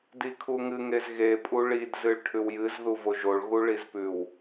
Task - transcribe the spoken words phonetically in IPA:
d i kʰ u ŋ ɨ ŋ e z ɣ e pʼ u ɭ i d z ɨ ɭ ʈʰ ʉ w j ɨ z ð u v o ʒ o ɭ ɣ u ɭ i z p ʉ w

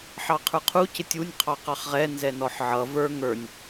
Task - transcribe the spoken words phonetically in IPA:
ħ ɑ qʰ ə˞ qʰ u c ɪ tʲ u nʲ qʰ ɑ q ɑ χ ʁ ɛ n z ɛ n ɔ ħ ʕ ʌ v ə˞ ŋ ə˞ nʲ

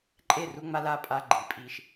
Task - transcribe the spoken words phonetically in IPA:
ǃʼ e˦˨ r u˧ ŋ͡m a˦ l a˦ pʼ a˧ ɡ͡ǃ i˨ pʼ i˧ ʃ

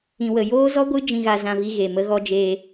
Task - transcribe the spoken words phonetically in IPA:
ĩ˧ w ə˧ j oː˦ z ɔ˦ ɡʷ ɨ˦ d͡ʒ ĩ˧ ɣ a˧ z ã˧ v i˧ ɣ e˨ m ə˧ ɣ ɔ˧ d͡ʒ eː˧

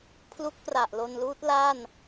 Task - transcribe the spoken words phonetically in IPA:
pʰ l u˦˥ k̚ p r a˨˩ ʔ l o˧ n l uː˦˥ t̚ l a˥˩ n

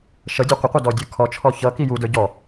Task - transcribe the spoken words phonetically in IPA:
ʃ ʌ dʲ ʌ qʷ ə qʷ ʌ d ɔ dʲ ə˞ kʰ ɔ t͡ʃʰ ɔ ç ʌ k i j u d ə˞ ɟ ɔ

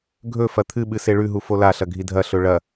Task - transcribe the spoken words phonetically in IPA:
ɡʱ ɵ f ɐ t̪ʰ ɨ ɓ ɨ s e ɭ ʉ ɦ u f o l a ɬ ɐ ɡʱ i dʱ ɐ ɬ ɵ ɭ ɐ

